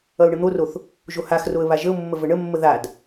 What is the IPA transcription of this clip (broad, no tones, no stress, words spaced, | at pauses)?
ʌʊ̯ɳən̪oroθ | ʒohaxroə̯ βaʒəʊ̯mːə vəɳəmːə ðad